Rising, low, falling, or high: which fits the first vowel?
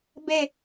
falling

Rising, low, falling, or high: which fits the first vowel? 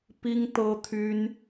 high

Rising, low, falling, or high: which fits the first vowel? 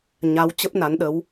rising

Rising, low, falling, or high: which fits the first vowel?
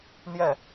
falling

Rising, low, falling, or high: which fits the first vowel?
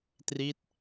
falling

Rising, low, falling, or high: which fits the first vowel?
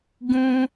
high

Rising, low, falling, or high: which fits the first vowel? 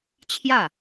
falling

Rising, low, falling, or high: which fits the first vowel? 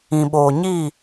low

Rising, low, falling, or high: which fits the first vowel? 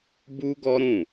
high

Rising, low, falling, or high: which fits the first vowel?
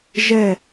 falling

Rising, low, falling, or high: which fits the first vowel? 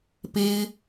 high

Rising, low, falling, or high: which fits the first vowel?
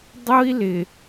high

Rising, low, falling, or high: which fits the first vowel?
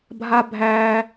high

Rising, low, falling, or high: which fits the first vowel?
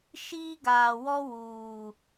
high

